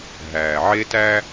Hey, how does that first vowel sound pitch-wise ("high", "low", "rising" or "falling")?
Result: low